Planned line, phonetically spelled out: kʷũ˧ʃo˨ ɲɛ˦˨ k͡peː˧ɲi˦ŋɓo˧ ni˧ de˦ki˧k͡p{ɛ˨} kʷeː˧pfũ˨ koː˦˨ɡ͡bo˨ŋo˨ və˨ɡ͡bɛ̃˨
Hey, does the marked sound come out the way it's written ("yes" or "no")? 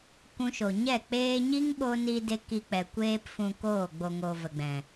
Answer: yes